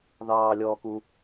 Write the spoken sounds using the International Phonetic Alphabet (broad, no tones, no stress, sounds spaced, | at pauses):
ð ɑː lʲ ɔː k u